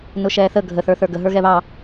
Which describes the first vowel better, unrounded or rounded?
rounded